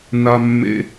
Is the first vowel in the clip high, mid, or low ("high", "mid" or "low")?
low